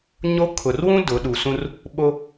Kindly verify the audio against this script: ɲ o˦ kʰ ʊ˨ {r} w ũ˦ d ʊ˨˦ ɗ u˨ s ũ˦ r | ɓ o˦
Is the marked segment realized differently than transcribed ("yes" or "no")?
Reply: no